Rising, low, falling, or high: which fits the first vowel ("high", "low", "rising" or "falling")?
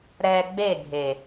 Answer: low